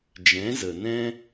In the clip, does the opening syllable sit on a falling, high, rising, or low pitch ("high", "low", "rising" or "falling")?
rising